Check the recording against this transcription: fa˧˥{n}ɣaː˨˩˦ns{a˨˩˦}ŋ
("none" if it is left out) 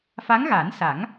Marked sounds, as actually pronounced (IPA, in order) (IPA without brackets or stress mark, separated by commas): ŋ, a˨˩˦